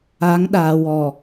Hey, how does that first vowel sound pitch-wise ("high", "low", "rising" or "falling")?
rising